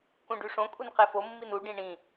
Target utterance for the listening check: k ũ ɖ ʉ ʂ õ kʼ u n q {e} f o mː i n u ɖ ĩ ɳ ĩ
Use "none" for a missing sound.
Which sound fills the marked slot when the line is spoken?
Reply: e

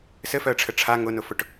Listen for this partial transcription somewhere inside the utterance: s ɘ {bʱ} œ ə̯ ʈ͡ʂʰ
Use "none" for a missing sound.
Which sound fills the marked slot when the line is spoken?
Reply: f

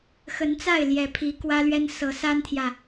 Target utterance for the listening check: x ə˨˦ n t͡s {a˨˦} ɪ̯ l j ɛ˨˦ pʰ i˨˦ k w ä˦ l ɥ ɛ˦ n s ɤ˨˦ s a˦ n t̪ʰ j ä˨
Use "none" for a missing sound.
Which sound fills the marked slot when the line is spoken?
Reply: a˥˨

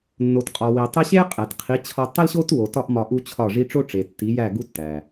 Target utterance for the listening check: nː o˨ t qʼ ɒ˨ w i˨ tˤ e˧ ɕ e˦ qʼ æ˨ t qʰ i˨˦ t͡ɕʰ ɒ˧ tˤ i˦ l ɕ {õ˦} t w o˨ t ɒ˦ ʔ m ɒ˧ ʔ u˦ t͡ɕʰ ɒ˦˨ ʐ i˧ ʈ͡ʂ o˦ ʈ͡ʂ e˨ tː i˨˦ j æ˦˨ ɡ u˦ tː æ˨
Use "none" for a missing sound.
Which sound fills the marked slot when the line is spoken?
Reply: o˦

